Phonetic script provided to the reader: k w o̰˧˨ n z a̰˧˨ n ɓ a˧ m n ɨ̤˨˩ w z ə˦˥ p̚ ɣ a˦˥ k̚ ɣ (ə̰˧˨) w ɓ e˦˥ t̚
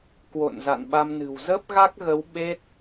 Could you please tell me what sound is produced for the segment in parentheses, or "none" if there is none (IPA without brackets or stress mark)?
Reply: ə˨˦